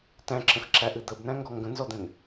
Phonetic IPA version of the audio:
t æ̃ ǁ ə̃ x ǁ æ ʔ ɨ d̪ ə b n æ̃ ŋ ɡ ɔ ŋ ɡ ə̃ n z ɔ d̪ ɛ̃ n

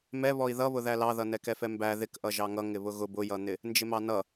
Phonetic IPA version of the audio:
m ɛ β ɔ i̯ ð ʌ β ʊ ð æ l ɑ ð ʌ n ɛ k ɛ f ɛ m b æ ð ɪ k ʔ ʌ ʒ ɑ ŋ ʌ ŋ ɪ β ʊ ɣ ʊ b ʊ j ʌ n̪ ɪ | n d͡ʒ ɪ m ɑ n ʌ

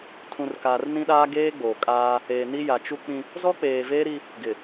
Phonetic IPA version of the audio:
tʰ ũ˨ r k aː˨ r n ĩ˦ ɗ aː˦ ɡ eː˦ ɡ͡b o˨ kʼ aː˦ | eː˨ n i˦ j a˨ t͡ʃ u˦ k͡p ĩ˦ | z ɔ˦ k͡p eː˨ v eː˦ ɾ i˦ | ɡ ɪ˨

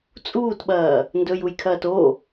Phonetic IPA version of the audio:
t͡sʼ uː t ɓ ɐː | n d ɵ j u j kʰ ɐː t o

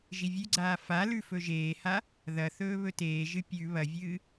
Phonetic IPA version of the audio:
ʒ i vʲ ʉ ɡ͡ǀ aː f a l ʉ f ɵ ʒ eː h a | ð ɐ θ ɵː β ɵ t eː ʒ ɨ pʲ ʉ β ɐ vʲ ɨː

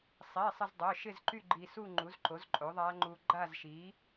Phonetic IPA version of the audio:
sˤ i˩˧˩ sˤ ɪ˧ z dˤ œ˩˧˩ ʃ ɪ˥˧ z ǃ y˥˧ ɡ͡ǃ i˧ s u˥˧ ŋ͡ǃ u˨˥ z ǃ o˨˥ z ǃʼ o˨˥ ðˤ a˦˥ ŋ͡ǃ u˧ ɡ͡ǃ a˥˧ z ʃ i˨˥

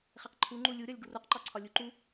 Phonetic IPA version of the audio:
χ e q ǃʰ u ŋ͡ǃ u lʲ u ɾʲ ɒ lʲ ɡ u r u q ǃ ɒ ǀʰ ɒ lʲ u ǃ u

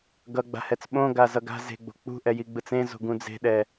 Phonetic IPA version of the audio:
ɡ ʌ ɡ͡b a̤ h ɛ t͡s ɓ õ ɡ a z ʌ ɡ a̤ z e̤ ɡ͡b o̤ k͡p ṳ ʔ ɛ j i ɡ͡b ɯ t͡s ẽ z o̤ ɡ ũ d͡z e̤ ɗ ɛ

